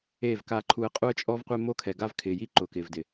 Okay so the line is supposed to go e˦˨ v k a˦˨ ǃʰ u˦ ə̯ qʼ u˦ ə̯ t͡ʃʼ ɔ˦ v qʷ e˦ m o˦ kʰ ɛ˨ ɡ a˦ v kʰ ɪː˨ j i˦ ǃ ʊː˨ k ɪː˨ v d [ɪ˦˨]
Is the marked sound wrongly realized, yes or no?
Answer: yes